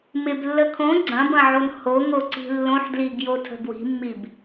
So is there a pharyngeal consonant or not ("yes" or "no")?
yes